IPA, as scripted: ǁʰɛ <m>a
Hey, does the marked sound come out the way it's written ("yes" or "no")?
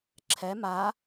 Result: yes